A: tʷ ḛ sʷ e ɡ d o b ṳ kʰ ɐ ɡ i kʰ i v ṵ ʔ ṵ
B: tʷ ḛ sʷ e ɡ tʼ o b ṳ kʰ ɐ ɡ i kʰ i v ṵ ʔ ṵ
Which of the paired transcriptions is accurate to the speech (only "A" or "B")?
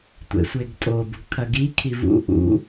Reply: B